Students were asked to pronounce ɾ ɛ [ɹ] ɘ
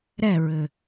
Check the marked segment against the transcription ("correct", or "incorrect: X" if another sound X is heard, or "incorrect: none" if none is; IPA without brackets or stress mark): correct